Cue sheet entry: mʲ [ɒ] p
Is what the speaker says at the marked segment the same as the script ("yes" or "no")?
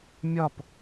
yes